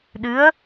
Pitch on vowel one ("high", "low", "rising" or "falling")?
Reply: rising